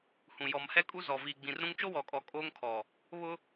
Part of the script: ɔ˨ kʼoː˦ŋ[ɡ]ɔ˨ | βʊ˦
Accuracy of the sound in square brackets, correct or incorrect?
incorrect